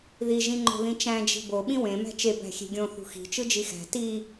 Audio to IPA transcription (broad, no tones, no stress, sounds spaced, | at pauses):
ð i ʒ ĩ ŋ͡ǃ o̤ ð ĩ t͡ʃ æ̃ d͡ʒ i̤ b o ɓ ĩ w ẽ m æ̤ t͡ʃ e b æ̤ xʲ e̤ ɡʲ õ θ ṳ x i̤ t͡ʃ ɯ d͡ʒ i x æ̤ t i